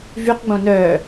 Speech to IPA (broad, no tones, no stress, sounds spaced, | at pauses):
v y q ɡ͡b õ n œː